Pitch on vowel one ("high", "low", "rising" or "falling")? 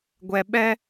low